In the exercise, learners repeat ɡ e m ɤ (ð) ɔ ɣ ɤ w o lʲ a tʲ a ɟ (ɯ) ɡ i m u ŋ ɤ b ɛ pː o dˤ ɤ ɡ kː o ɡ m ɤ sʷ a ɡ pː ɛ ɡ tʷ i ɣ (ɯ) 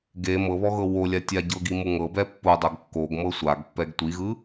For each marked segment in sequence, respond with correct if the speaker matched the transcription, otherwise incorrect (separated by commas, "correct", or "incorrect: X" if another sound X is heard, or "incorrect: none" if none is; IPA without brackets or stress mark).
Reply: incorrect: β, incorrect: ɤ, correct